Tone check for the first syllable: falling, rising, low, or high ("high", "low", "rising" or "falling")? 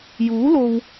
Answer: rising